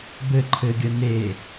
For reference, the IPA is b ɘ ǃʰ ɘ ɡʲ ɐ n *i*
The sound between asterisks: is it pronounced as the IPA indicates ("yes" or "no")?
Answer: no